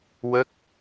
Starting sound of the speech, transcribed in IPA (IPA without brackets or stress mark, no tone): w